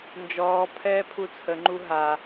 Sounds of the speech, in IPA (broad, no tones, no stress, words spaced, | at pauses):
nd͡ʒɔː pʰɛːpʰut͡sʰə ŋ͡ǃuɦa